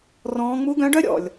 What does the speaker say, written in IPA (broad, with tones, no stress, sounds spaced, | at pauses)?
r ɔ̃ː˧˥ ŋ͡m u˧˥ ɡ œ̃˧˥ ɖ œ˥ ɾʲ ɔ̰˩ lʲ